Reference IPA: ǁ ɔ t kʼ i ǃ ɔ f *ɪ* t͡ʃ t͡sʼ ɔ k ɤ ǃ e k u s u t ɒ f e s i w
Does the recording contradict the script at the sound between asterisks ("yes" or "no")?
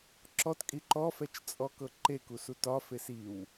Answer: yes